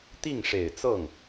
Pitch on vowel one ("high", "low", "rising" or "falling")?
falling